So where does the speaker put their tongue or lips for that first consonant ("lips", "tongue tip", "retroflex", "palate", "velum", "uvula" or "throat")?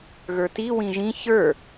velum